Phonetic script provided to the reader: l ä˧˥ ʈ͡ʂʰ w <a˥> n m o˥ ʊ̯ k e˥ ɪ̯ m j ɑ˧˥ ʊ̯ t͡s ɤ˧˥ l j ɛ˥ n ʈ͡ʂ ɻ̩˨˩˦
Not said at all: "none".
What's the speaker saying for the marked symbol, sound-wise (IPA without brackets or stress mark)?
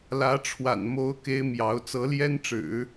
a̰˨˩